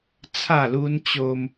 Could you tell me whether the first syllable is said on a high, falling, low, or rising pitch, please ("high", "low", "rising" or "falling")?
falling